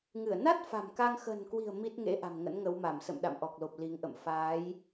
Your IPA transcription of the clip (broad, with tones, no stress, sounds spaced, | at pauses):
ŋ ɨ˧˩ ə̯ n a˦˥ t̚ f a̤˨˩ m k a˧ ŋ x ə̤˨˩ n k w i̤˨˩ ə̯ m i˦˥ t̚ ŋ ḛ˧˥ ʔ a̤˨˩ m ŋ ə̰˧˥ n ŋ ə˨˦ w m a˧˩ m s ə̰˧˨ m ɗ a̰˧˨ m ʔ ɔ˨˩ k̚ l o˨˩ p̚ l i˨˦ ŋ ʔ ə̰˧˨ m f aː˨˦ j